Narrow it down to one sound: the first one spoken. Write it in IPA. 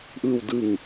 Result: ʔ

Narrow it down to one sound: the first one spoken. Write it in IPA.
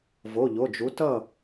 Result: v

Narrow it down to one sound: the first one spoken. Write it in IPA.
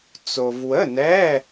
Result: t͡s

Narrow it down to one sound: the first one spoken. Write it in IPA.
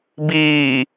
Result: b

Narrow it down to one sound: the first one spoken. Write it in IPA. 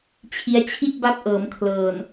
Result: t͡ɕʰ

